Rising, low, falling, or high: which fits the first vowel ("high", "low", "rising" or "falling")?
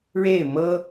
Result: falling